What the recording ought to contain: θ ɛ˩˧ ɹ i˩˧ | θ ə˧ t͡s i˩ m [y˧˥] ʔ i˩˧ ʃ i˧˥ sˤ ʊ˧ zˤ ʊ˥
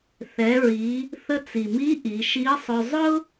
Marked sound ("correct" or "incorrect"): incorrect